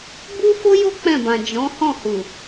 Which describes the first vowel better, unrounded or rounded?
rounded